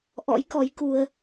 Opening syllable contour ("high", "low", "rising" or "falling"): rising